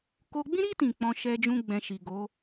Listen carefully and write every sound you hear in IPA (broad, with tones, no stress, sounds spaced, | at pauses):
k o˧ ɡ͡b ĩ˦ ɾ i˦ t ĩ˦˨ k͡p ɔ̃˧ ʃ ɛ˧ d͡ʒ ũ˦ ɡ͡b ɛ̃˧ ʃ i˨ ɡ o˨˦